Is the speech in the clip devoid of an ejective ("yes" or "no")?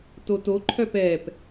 yes